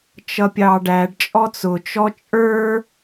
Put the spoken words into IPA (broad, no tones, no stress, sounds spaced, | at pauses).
t͡ʃ ʌ pʲ ɑ ɖ æ ɖ t͡ʃʼ ɔ t͡s ʊ t͡ʃ ɔ t͡ʃʼ ə˞